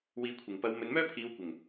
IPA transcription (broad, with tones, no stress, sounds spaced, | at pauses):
w iː˨˧ kʷʰ ɪ˨˩ ŋ p ɐ˨˧ w m ɵ˨˧ n m œː˥ pʰ iː˨˧ w kʷ ɪ˨˩ ŋ